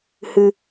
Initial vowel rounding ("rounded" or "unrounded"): unrounded